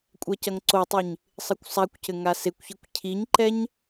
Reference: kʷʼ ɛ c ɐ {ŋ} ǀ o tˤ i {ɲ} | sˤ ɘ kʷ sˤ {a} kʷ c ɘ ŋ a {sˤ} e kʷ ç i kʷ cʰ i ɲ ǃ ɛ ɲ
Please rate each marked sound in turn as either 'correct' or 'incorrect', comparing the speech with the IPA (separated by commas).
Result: correct, correct, correct, incorrect